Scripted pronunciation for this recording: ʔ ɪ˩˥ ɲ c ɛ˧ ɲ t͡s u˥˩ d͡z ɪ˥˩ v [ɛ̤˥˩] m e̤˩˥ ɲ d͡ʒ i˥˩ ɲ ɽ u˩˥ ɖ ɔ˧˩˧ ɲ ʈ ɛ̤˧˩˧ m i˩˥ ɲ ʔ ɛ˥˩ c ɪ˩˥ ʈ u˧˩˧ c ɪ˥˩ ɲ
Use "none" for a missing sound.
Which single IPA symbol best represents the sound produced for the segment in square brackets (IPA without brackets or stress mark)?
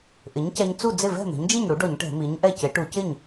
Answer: ɛ̤˥˩